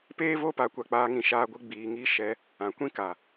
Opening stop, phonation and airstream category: plain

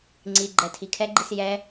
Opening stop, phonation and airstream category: click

